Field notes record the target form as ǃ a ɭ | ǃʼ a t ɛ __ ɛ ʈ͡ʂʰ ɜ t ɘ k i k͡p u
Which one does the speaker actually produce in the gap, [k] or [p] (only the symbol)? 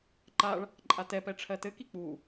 p